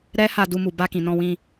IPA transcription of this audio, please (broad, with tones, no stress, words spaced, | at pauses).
ɾɛ˦ ha˧du˧mu˨ba˧ kĩ˨nɔ̃˧wĩ˧